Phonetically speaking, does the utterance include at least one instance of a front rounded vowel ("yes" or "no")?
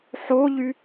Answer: yes